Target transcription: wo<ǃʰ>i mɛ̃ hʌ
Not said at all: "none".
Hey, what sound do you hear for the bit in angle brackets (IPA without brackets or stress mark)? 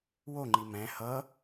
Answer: ŋ͡ǃ